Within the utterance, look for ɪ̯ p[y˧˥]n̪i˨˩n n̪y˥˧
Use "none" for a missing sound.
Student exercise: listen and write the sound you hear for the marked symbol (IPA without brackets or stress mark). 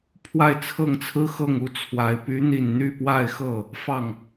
y˧˥